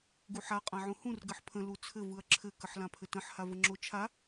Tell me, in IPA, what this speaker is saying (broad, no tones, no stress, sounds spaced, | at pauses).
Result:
ɡ u ħ a qʼ ã ʕ ũ h ũ r ɡ ɘ ħ pʰ ə̃ l u t͡sʰ ɘ v ɯ ɐ̯ ǁʰ ɘ k ə ħ l ã pʰ ɘ t ə̃ ħ h a v ə ŋ͡ǁ o t͡ʃʰ a